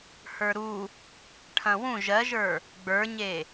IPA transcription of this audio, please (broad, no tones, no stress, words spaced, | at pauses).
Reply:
hə˞ɾu | ʈʰɐ̃wũ ʒɜʒə˞ | ɡ͡bə˞ɲe